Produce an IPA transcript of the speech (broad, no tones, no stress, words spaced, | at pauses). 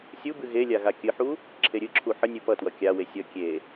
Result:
sʲubɨ ɣelʲa ɣakʲɨħu | ǁʰeɾʲɨǁʰu ħənʲɨ pʌtwʌ kʲawe sʲʌ kʲe